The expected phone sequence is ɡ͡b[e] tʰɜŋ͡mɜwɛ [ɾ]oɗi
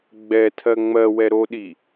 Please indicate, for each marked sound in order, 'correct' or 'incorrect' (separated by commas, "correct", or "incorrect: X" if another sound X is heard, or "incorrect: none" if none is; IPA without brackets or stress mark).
incorrect: ɛ, correct